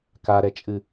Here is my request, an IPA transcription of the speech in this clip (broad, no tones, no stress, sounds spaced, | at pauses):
k a ɾ ɛ t͡ʃʼ ɨ